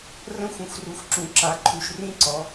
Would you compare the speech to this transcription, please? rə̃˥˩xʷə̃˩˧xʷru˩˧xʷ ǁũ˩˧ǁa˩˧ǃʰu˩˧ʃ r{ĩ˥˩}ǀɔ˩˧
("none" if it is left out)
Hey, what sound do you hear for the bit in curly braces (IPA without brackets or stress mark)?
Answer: ĩ˥˩